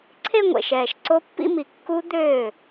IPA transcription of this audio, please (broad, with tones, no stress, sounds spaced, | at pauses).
ǀʰ e˥˧ ŋʷ ḛ˨˩ ʃ ɛː˨˩ ʃ ǀ o˦˥ pː ḭ˥˧ m i˨˩ kː u˦˥ d̪ øː˥˩